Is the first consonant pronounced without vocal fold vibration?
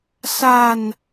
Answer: yes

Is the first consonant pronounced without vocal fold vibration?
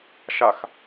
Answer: yes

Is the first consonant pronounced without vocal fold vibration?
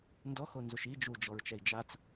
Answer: no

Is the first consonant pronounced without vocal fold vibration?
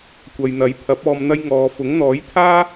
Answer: yes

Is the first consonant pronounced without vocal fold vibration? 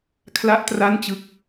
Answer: yes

